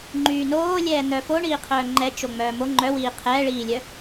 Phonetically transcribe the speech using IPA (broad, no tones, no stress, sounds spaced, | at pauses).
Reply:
ŋ͡ǃ yː n oː lʲ ɛː n̪ œ f o ɳ iː qʰ œː ŋ͡ǃ ɛ t͡ʃ o ŋ͡m œː m o ŋ͡ǃ œ w iː qʰ ɛː ɭ iː lʲ œ